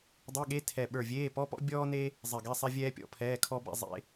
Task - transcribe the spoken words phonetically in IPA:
dˤe˧˥˧ɠe˧˥˧ tʰɛ˧˩ɓə˞˧˩vʲeː˧˥˧ pɔ˧˥˧pɔ̰˥ bʲɔː˥ne˥ | zˤe˧˩ɡɛ˧˥˧sˤɛ˥ vʲɛː˥pʲɔ̰˧˥˧pʰɛː˧˥˧kʰɔ˥ bɛ̰˥ zˤḛ˥

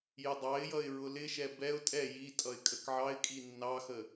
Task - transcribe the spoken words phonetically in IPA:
jədˤɑɪ̯jʌɪ̯ ɹʊlɪʃɛ bɛʊ̯ tʼɛ jitʼʌɪ̯ kʼəkʕɑɪ̯kʼi nːɑxə

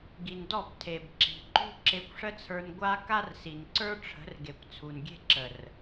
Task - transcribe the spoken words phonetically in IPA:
ɡi˨ndɔ˦˨b tʰe˨bǁi̤˨ǃṳ˦ ǁe˧kʷʂə˦t͡sʰə˞˧n ɡʷa˦ ka˦rsi˨nǀə˞˦ ʈ͡ʂʰə̤˨˦rɡe˨kʷ t͡sʰu˨nɡʲe̤˦ǁə˨r

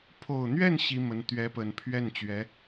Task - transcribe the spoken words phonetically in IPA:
pʰo˨˩ʊ̯n̪ɥɛ˥˩n ɕi˥mə˧˥n t̪ɥɛ˧˥pə˨˩n pʰɥɛ˥˩nt͡ɕɥɛ˧˥

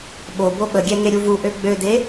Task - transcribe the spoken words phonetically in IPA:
ɓo boɓəɡʲɛ ŋeɾʲuvuʔø ɡ͡bøde

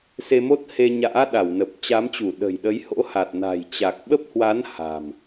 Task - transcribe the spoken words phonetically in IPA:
se˧mo˦˥t̚he˧ɲa̰ː˧˥ ɗa˧˩wnə˨˩p̚t͡ɕa˨˦mt͡ɕu˧˩ ɗə̤˨˩jɗə˨˦jho̰˧˥ha˨˩t̚ na̤˨˩jt͡ɕa˨˩k̚ ɓə˦˥p̚hwa˨˦n ha̤˨˩m

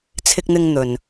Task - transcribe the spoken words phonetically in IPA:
t͡sʰɪ˧k̚n̪ɪ˧ŋ n̪ɵ˨n

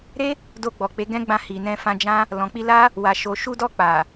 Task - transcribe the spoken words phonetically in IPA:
ɾe˦ | do˧ ɡ͡bɔ˨k͡pe˨˦ɡɛ̃˦ɡ͡bã˧ hi˨nɛ̃˧fã˧d͡ʒã˦ | lɔ̃˨k͡pi˧la˦ | wa˨ʃo˨ʃu˧dɔ˧ k͡pa˨

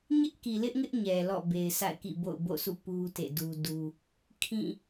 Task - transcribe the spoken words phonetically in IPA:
ɲɪ˦ʔki˨lɪ˦ʔŋɪ˦ʔ ɲɛ˨lɔ̰˦˨ be˨ɪ̯sa̰˦˨ɪ̯kḭ˦˨bo̰˦˨ʊ̯ bo̰˦˨sṵ˦˨ pu˦ tḛ˦˨du˦du˦ | kʰĩ˦˨

